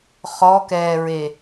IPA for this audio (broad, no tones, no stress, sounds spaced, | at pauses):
χ ɔ k ɛː ɹ e